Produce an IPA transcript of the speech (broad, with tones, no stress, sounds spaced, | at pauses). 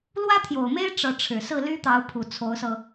l w ä˥ t̪ʰ j o˨˩ ʊ̯ m e˥ ɪ̯ ʈ͡ʂ ɤ˧˥ ʈ͡ʂʰ ɻ̩˨˩ s ɹ̩˥˩ l y˥ t̪ ɑ˧˥ ʊ̯ pʰ u˨˩ t͡sʰ o˧˥ ʊ̯ s ɤ˧